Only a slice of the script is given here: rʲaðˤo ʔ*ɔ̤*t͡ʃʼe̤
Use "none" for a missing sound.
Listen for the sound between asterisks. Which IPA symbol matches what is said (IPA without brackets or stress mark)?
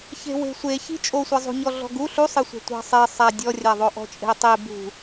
ɔ̤